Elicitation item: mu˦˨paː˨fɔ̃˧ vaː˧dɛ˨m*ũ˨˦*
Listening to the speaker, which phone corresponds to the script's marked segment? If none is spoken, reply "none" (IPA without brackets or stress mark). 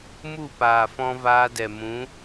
ũ˨˦